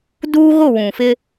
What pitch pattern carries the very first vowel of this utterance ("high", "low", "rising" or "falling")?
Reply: high